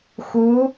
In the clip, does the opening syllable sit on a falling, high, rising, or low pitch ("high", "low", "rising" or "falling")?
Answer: rising